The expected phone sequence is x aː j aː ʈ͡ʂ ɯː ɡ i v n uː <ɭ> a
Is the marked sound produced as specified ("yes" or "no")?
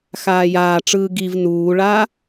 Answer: yes